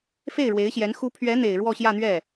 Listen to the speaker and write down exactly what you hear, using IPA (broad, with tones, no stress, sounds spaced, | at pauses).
f e˥˩ ɪ̯ ɻ w e˧˥ ɪ̯ ɕ j ɛ˧˥ n x u˧˥ pʰ ɥ ɛ˧˥ n̪ e˨˩ ɪ̯ ɻ w ɔ˥˧ ɕ j ä˥˧ n̪ ɥ ɛ˥˩